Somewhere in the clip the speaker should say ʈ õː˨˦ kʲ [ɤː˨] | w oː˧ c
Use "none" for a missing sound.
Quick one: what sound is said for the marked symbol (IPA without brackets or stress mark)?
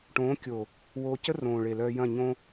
oː˨